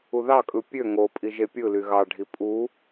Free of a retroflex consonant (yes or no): no